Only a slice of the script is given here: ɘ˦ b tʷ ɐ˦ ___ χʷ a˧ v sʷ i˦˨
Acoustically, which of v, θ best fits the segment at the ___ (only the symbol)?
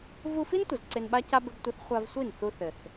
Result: θ